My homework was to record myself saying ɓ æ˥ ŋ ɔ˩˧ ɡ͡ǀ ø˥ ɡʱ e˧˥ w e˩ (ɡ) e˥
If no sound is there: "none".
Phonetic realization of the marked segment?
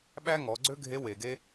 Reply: ɡ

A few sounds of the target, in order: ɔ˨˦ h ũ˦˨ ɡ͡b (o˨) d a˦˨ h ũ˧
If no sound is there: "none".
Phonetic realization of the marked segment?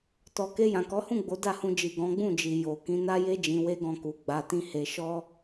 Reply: o˨˦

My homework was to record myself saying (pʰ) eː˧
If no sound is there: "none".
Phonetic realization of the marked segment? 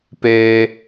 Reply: p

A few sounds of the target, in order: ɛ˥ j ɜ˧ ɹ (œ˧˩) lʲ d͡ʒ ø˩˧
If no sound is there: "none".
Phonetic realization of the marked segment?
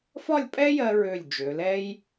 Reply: ø˧˩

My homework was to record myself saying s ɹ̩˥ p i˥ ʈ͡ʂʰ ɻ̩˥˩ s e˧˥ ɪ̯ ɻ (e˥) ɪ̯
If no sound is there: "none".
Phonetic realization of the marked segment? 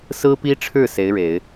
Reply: e˨˩˦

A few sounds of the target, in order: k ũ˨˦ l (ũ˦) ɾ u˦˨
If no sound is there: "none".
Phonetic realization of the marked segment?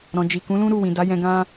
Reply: ũ˦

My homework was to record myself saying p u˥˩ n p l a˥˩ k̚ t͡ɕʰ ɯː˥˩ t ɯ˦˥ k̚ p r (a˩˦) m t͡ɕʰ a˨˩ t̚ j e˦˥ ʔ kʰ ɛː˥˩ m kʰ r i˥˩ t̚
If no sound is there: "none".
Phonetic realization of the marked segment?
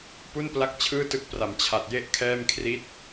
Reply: a˩˦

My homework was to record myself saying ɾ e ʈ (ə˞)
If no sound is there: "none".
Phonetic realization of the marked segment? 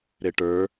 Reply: ə˞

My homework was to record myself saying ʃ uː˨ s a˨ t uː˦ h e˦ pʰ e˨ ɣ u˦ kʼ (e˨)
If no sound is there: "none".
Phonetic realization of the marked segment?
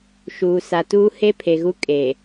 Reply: e˨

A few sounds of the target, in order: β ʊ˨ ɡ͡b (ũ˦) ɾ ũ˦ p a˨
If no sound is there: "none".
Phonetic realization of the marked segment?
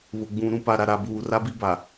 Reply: ũ˨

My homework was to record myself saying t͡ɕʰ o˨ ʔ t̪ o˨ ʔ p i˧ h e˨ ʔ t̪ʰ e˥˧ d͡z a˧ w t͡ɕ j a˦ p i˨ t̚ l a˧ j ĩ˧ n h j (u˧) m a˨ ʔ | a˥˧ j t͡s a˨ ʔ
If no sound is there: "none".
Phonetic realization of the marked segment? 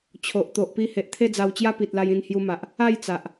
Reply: u˧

